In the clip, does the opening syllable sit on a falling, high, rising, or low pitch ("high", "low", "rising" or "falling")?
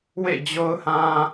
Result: falling